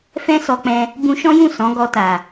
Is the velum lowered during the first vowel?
yes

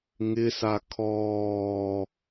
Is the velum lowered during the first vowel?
no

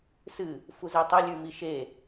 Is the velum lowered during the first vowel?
no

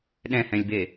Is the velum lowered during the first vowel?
yes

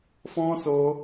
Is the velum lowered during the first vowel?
yes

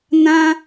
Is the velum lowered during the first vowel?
yes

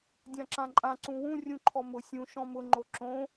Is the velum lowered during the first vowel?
yes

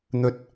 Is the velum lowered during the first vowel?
no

